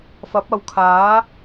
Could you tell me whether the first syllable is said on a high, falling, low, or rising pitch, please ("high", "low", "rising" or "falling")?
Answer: rising